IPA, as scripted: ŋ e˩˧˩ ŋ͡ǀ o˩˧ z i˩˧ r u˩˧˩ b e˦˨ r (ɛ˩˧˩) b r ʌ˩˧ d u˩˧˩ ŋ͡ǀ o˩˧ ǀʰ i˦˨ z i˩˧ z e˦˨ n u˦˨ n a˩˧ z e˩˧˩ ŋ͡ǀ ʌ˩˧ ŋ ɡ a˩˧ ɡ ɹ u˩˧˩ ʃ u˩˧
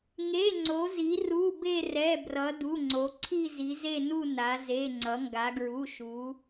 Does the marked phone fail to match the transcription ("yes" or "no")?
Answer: no